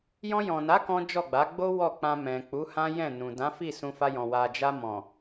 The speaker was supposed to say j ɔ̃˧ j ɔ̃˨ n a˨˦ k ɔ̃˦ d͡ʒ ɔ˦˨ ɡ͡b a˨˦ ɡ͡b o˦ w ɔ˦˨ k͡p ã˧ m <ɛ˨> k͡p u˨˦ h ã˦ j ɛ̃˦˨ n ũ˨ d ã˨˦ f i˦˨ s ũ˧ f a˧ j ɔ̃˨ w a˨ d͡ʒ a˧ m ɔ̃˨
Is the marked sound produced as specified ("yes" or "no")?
no